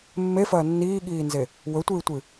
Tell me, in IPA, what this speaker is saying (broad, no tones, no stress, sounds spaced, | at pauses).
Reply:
mː e f ɐː nː iː ɠ iː n z e | w ɵ tʷ ɨː tʷ ɨ